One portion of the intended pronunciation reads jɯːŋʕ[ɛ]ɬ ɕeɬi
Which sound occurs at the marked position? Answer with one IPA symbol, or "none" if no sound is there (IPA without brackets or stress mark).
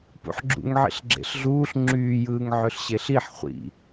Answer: ø